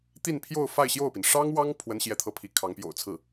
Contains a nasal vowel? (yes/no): no